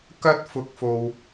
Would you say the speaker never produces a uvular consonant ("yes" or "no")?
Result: yes